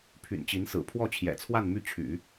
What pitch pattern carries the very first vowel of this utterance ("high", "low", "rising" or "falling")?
low